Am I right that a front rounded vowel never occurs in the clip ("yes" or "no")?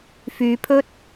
no